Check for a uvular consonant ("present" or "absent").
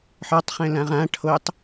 present